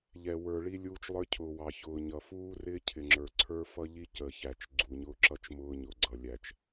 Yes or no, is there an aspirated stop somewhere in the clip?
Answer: yes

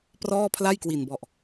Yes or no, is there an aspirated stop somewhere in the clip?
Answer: yes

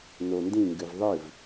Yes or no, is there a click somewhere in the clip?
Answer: no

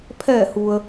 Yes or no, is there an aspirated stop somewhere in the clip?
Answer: yes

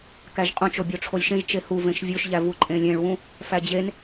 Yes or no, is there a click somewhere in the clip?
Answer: yes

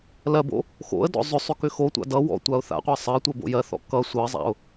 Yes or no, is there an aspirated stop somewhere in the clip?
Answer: no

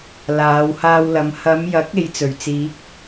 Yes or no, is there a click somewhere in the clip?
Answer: no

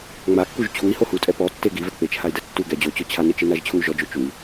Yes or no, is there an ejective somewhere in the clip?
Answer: yes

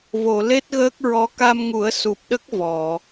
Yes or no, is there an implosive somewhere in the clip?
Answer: yes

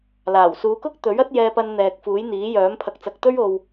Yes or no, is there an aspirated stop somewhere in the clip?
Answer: yes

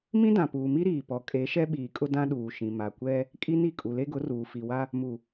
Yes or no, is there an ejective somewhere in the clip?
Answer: yes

